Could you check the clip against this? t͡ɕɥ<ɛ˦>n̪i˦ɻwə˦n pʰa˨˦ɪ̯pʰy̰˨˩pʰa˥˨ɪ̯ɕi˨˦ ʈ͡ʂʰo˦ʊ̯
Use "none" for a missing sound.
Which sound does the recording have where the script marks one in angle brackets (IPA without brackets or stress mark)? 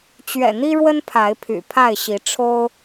ɛ̰˨˩